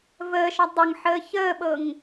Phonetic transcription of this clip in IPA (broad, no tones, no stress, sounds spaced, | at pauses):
v əː ʃ ɒ dˤ ɤ ŋ ħ əː ç əː ɓ ɤ ŋ